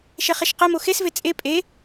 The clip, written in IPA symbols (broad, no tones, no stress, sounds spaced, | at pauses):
ʃ ɛ χ ɛ ʃ q ɛ m o x e s v e t͡sʼ e pʼ e